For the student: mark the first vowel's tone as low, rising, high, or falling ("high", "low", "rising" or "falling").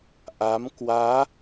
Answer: rising